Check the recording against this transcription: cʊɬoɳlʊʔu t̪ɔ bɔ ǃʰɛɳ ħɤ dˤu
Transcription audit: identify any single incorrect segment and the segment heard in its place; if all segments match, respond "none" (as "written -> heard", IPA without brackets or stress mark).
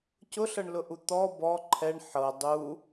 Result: o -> ɤ